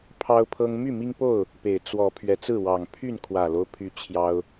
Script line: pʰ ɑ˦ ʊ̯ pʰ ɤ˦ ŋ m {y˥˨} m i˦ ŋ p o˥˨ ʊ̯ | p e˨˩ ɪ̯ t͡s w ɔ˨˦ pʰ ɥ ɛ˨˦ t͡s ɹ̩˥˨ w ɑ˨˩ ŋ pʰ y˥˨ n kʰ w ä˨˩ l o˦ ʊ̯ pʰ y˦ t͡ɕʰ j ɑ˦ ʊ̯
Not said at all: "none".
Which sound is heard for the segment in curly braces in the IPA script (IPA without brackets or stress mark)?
y˥˨